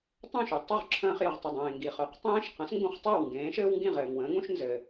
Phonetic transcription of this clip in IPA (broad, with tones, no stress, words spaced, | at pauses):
tˤũ˥˩ʃu˩tˤɵ˥˩ʁǁʰə̃ː˧χ jə˩ʁtˤɘ˩dˤẽː˩ ŋɡi˩χɵ˩˥q tˤẽː˥ʃ qə̃˩˥sŋɡũ˧χ tˤɘː˥˩wŋɡẽː˩˥ʃɘː˥wŋɡĩ˥˩ ʁɘː˩ŋwə̃ː˩˥ŋũ˥ʃ nzɘ˩